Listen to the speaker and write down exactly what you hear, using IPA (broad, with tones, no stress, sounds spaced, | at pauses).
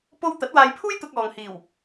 p o˥ w t̪ ɐ˨˥ t̚ w aː˧ j pʰ uː˥ j t̪ ʊ˧ k̚ ɔː˨ ŋ h iː˨˩ w